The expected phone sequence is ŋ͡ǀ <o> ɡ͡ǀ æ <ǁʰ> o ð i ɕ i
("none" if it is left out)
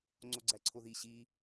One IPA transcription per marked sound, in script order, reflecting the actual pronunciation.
o, ǀʰ

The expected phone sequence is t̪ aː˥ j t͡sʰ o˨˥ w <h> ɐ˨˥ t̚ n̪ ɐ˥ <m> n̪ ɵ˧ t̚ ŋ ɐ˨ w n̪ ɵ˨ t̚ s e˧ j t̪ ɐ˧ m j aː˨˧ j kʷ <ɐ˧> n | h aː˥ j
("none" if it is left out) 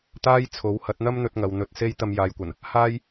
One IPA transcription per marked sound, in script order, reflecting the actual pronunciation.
h, m, ɐ˨˩

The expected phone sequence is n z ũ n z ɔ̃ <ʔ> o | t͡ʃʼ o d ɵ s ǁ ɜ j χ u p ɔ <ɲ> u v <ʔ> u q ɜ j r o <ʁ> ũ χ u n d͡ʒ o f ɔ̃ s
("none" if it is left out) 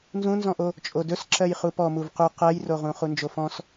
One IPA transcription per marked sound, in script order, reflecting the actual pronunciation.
ʔ, m, q, ʁ

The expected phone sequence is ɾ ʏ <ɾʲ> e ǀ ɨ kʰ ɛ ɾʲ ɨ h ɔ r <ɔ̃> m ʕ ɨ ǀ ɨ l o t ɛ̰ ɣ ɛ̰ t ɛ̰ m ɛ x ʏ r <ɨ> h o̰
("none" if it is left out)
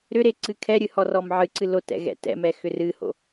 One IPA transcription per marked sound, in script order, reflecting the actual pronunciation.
ɾ, ɔ, ɨ

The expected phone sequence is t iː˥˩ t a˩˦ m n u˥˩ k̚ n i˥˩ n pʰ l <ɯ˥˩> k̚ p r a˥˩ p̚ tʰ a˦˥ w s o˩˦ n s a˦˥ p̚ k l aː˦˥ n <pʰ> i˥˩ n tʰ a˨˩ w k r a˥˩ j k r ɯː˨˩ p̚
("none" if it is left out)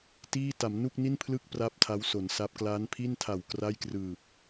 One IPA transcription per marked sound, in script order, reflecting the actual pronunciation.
ɯ˥˩, pʰ

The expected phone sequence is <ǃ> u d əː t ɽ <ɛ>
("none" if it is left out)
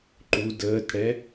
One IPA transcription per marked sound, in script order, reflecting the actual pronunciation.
ǃ, ɛ

